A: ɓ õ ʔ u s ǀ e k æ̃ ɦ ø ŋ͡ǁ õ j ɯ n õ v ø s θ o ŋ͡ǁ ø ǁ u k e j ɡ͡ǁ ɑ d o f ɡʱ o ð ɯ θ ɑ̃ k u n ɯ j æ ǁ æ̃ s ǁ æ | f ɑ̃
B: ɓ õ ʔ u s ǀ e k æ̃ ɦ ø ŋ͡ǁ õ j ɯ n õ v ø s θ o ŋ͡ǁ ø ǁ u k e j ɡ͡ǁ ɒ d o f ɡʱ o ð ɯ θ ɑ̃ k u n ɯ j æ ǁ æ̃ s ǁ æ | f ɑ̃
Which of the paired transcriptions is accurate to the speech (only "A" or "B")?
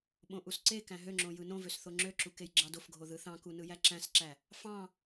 A